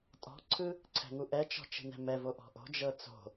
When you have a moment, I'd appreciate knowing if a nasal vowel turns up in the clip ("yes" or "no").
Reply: no